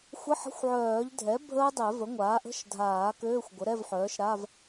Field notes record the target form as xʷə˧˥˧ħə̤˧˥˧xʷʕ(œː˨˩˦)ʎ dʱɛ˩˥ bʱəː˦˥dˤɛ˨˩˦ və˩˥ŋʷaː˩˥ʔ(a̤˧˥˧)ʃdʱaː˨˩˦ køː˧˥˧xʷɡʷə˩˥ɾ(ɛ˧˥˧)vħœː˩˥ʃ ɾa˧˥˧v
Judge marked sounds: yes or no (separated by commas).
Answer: yes, no, yes